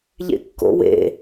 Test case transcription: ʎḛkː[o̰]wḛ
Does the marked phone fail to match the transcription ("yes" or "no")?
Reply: no